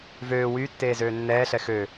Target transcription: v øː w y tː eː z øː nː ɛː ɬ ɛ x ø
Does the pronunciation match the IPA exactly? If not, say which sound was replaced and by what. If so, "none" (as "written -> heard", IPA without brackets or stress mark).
none